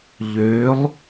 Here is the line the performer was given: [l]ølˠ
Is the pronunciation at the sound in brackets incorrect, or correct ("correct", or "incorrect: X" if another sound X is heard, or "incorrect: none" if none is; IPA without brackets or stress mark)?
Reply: incorrect: ʎ